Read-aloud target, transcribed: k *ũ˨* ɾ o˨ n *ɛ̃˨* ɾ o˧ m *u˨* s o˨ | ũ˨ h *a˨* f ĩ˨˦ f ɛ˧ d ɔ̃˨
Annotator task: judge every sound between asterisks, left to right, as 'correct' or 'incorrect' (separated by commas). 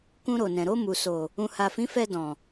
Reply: incorrect, correct, correct, correct